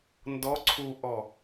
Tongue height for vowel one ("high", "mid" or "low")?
mid